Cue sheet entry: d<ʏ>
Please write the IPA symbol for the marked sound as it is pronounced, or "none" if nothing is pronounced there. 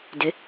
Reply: ʏ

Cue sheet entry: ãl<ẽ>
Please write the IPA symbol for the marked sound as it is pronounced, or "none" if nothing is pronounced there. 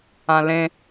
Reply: ẽ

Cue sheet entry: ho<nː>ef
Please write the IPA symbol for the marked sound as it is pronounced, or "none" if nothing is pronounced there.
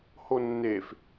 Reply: nː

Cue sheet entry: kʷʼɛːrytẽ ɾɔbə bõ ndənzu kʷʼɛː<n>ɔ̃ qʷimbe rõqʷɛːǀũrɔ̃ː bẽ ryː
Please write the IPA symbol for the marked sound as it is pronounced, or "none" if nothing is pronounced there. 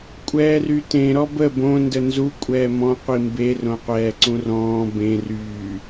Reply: m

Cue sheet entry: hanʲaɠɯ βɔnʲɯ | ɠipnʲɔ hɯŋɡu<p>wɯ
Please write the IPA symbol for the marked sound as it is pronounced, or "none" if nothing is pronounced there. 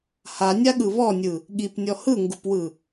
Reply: p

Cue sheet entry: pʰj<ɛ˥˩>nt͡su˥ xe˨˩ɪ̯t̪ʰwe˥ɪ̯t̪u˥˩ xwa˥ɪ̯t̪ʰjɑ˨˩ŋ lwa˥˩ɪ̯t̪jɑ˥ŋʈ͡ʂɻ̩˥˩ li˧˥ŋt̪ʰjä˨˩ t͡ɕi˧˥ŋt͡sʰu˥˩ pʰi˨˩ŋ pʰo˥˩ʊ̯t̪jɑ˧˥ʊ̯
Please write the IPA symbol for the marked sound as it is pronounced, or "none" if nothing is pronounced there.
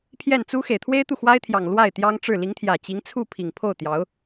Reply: ɛ˥˩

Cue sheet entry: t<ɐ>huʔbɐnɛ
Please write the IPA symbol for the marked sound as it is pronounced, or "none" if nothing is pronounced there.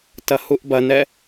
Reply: ɐ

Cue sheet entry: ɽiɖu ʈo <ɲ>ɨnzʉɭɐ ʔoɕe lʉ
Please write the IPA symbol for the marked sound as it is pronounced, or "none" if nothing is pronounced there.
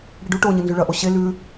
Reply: ɲ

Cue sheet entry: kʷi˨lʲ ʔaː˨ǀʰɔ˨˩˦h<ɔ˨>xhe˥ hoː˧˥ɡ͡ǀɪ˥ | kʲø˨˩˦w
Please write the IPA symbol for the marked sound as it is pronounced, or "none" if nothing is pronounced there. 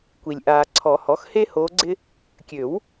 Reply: ɔ˩˥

